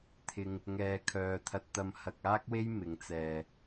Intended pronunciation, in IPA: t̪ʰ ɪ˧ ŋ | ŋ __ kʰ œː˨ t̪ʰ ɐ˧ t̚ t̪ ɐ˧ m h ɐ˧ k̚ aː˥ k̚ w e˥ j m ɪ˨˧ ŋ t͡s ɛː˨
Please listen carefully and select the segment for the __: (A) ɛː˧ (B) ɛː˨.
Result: B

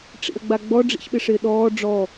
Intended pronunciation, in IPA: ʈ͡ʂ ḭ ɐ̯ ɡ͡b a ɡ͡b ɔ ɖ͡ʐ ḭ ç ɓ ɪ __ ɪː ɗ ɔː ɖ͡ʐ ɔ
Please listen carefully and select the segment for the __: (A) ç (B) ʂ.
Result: B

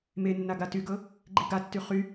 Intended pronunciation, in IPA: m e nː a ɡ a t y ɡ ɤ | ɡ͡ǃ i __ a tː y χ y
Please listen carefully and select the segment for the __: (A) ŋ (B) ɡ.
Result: B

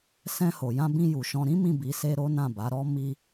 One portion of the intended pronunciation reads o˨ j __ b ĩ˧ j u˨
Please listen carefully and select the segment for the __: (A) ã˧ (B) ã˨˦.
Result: A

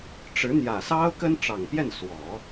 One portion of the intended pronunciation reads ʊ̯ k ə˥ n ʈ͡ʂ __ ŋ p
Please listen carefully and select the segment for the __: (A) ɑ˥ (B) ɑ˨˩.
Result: B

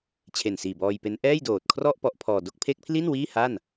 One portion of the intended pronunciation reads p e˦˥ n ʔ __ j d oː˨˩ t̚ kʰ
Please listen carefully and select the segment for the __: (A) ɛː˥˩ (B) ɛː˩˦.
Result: A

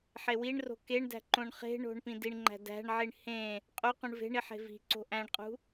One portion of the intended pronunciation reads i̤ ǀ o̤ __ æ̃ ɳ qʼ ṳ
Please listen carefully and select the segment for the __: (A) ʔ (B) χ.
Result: A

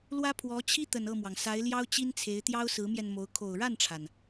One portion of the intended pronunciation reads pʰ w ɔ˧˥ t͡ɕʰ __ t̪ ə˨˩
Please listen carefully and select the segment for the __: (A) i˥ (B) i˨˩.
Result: A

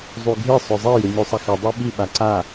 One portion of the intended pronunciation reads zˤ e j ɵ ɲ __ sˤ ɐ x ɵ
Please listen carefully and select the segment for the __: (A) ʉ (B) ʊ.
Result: A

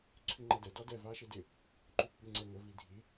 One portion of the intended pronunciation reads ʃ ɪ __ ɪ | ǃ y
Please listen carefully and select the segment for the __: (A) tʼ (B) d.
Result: B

